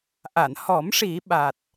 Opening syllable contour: low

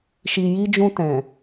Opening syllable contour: low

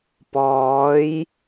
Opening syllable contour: rising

